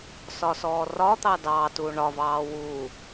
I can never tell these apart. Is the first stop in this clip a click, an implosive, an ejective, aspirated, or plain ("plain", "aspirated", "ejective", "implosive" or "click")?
plain